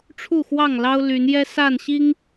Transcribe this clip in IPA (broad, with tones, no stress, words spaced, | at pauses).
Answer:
ʈ͡ʂʰu˥˨xwɑ˥˨ŋ lɑ˦ʊ̯ly˨˦njɛ˦ sa˥˨nɕi˦ŋ